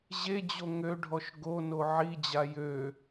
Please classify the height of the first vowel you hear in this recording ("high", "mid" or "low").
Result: mid